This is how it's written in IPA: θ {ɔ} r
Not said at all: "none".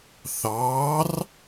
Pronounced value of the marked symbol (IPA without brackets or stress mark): ɑ